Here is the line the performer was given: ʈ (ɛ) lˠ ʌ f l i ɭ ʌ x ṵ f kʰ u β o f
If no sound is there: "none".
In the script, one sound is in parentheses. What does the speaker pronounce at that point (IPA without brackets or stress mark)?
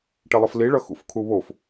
ɛ